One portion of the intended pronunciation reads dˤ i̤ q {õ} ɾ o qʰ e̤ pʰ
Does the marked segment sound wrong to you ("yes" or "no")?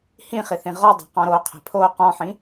yes